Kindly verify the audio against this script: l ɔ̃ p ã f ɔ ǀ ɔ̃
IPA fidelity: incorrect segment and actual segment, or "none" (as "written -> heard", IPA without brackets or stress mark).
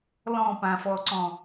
none